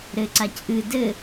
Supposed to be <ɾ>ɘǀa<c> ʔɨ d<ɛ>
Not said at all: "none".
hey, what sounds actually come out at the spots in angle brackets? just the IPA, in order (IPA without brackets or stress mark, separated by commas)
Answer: ɾ, c, ɘ